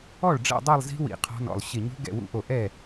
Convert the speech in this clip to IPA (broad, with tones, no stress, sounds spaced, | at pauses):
ɔ˥˩ ɭ ɖ͡ʐ ɛ̰˥˧ dˤ ɛ˥˧ lˠ z i̤˦˥ w ḭ˧˩ qʰ ɔ̤˦˥ n ɔ̰˧˩ lˠ ɕ ɪ˧˩ ɲ ṳ˦˥ ɡ ɛ̰˥˩ w ṵ˦˥ ʔ o˧˩ ʔ ɛ˥˩